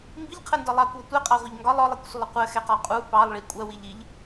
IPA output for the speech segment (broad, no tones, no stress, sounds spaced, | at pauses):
m b i ʎ qʰ ə n d ɒ lˠ ɑ kʷ ɔ tʷ ɛ qʼ ɑ ʁʷ ʌ ʎ ŋ ɡ ɒ lˠ ɔ lˠ i kʷ sʷ ə lˠ ə qʷ ɜ x ɛ q ɒ qʼ u p ɑ lˠ ɭ i kʷʼ ɜ w i ʎ i ʎ